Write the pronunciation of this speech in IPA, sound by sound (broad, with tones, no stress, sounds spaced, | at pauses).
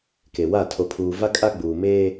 k e˨ w a˦˨ tʰ o˨ pʰ uː˨ v a˦ kʼ a˦ ɡ͡b uː˨ m eː˦